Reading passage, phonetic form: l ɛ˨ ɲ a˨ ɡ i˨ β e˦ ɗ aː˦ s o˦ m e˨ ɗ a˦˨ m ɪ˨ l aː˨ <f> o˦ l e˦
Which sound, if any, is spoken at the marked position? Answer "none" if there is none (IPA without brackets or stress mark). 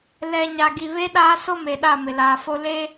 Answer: f